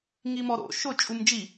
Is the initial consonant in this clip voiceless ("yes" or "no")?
no